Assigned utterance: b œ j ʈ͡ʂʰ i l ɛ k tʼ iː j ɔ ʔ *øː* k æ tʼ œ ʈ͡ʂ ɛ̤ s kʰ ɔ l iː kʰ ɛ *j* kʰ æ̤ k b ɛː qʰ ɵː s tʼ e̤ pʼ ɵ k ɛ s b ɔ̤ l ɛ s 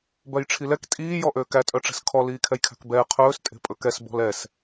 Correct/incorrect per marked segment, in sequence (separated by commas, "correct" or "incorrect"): correct, correct